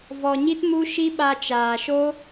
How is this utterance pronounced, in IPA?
v ɔ˧ ɲ i˦ t m u˦ ʃ i˦ ɓ a˧ t͡ʃ aː˨ ʃ o˦

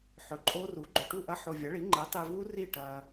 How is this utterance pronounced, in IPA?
ħ ɵ˩˥ ǃʼ o˦˥ r u˩˥ ɡ͡ǃ ɵ˨ ʈ u˥˩ ʔ ɐ˦˥ ħ o˨ vʲ ɐ˩˥ ɭ i˩˥ ŋ͡ǃ e˩˥ tˤ i˨ v u˦˥ r i˥˩ ʈ ɐː˨

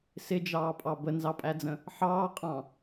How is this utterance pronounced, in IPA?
s ɪ d͡ʒ ɑː pʼ ɑ b ə n z ɑ pʼ æ d͡z ə̃ | ħ ɑː qʼ ɑ̃

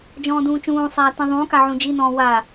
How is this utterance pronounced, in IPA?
d͡ʒ ɔ̃ː d ũː t͡ʃ ũː sˤ aː t ĩ ðˤ ũː k a ʕ ũ d͡ʒ i n ɔ̃ː w a

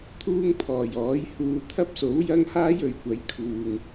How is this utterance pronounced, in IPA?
t̪ʰ uː˥ ŋ pʰ ɔː˨˩ j ɔː˨˥ j h uː˧ t̪ʰ ɐ˥ p̚ s o˨˥ w j ɐ˥ ŋ h aː˥ j ɵ˨ ɥ kʷ ɐ˨˥ j kʰ uː˨ ŋ

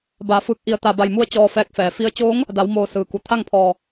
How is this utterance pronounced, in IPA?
b a˩˧ f ɯː˧˩ k̚ ʔ i˧˩ ə̯ t̪ a˧˩ b a˧˩ j m u˧ ə̯ t͡ɕ ɔː˧ f ɛː˧ k̚ f ɛː˩˧ f i˧˥ ə̯ t͡ɕ oː˧˥ ŋ | d a˩˧ w m oː˧˩ s ɯː˩ k u˩ t̪ʰ a˥˨ ŋ pʰ ɔː˧˩

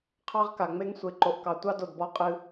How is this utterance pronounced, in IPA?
qʰ ɑ˦ ʁ k a˨ ŋ͡m e˦ ŋ sʷ e˨ ǃ o˨ ʔ k ɑ˨ tʷ ɑ˦ d o˨ d b ɔ˧ qʼ ɨ˧

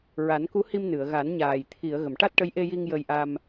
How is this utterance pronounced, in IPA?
ɹ a˨˩˦ n k u˧˥ h i˧ m n ɨ˨˩˨ ə̯ ɣ a˨˩˦ n ɲ aː˨˩ j t̪ʰ i˨˩˨ ə̯ ɣ ə˨˩˨ m ʈ a˦˥ t̚ ʈ ə˧˥ j ʔ e˧ j i˧ ŋ j ə˧ j ʔ a˧ m

